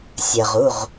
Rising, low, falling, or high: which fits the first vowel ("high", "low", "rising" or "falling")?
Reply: low